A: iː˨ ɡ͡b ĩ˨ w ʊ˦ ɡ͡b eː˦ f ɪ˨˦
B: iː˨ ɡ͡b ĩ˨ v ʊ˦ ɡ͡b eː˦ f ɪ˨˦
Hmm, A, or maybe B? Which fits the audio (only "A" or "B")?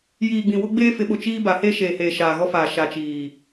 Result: A